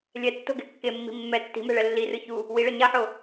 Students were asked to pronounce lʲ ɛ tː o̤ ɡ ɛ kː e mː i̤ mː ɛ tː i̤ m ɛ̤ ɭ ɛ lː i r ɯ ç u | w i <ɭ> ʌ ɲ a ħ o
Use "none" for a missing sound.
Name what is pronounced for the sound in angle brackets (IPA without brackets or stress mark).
ɭ